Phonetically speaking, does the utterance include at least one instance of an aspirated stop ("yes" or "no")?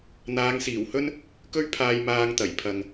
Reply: yes